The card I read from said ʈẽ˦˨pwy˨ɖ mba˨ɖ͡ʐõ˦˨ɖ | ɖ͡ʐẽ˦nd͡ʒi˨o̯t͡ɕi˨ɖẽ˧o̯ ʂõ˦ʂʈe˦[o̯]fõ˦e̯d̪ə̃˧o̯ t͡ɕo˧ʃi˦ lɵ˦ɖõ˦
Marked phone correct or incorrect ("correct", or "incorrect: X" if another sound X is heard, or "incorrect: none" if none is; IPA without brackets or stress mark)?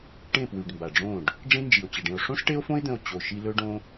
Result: correct